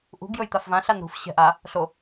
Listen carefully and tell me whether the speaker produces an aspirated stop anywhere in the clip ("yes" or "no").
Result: no